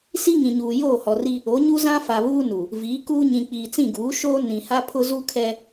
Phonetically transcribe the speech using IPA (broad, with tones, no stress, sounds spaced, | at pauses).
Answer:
s i˦ ŋ ĩ˨ ɲ uː˨ j oː˦˨ h ɔ˨ r i˦ | o˨˦ ɲ u˦ z ã˦ f a˨ β uː˦ n u˨ | v iː˨˦ k uː˦ ɲ ĩ˨ k͡p iː˨ t͡s ĩ˦˨ ɡ uː˨˦ ʃ oː˦ n ĩ˨ h a˦ pʰ ʊ˦ z u˦ kʰ ɛ˦